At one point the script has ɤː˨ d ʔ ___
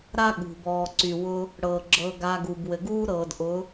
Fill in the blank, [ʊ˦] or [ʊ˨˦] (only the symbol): ʊ˨˦